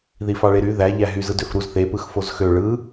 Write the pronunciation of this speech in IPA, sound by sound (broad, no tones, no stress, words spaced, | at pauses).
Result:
ðifɑɭeɾy ðæ ʎæɦyzɯ døfɾuz θepɯx fozxø ɭɯ